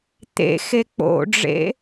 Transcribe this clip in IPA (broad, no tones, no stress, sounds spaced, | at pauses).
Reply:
t̪ ḛ x e k͡p o̰ ɖ͡ʐ ḛ